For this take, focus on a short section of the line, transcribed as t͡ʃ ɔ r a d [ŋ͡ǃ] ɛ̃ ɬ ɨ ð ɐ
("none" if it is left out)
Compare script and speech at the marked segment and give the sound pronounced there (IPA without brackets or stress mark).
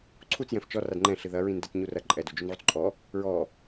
ŋ͡ǃ